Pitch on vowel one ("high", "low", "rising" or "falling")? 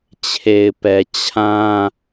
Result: low